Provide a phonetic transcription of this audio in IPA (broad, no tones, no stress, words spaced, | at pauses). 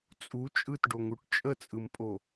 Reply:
t͡sʼu t͡ʃʼɯtɖoŋuʈ t͡ʃʼət͡sʼɯmpʼo